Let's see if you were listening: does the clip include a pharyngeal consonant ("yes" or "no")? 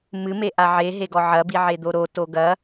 yes